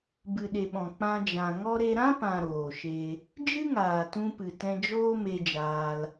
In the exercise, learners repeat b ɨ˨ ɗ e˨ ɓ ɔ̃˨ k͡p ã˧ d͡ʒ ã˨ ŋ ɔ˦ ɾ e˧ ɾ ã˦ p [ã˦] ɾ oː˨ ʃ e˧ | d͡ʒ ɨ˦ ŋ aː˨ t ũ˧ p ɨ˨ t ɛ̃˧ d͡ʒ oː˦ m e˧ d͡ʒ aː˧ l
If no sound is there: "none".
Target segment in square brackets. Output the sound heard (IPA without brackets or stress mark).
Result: ã˨